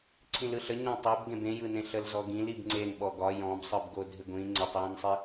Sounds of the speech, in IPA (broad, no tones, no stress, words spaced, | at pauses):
ǀʰĩlɯɬə ɲɔ̃tˤebɡẽb ẽjɯnẽ ɬəlzɔɡĩlib ŋ͡ǀenɓɔ ɡɒ jɔ̃bsˤɯbɡo dʱɪɡʷĩ ŋ͡ǀətˤjĩnsˤi